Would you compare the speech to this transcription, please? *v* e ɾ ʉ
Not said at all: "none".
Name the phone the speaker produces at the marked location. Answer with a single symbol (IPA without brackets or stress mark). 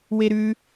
w